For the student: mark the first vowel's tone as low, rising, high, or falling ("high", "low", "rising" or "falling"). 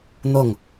falling